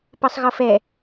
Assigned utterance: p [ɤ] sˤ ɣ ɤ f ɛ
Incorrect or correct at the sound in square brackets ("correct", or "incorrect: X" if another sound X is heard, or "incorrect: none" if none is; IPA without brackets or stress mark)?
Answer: correct